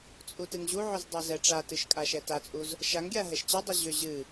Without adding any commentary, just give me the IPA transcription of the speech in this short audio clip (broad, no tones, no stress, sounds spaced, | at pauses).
t͡sʼ u t ɨ ŋ ʑ u ʕ ʏ z dˤ ɛ z ɛ ʈ͡ʂ a t ɨ ʃ kʼ a ʃ ɛ t a t͡sʼ u z | ʃ a ŋ ɡʲ a ɦ ɛ ʃ t͡ɕ ɨ dˤ u ʑ ʏ ʑ ɨ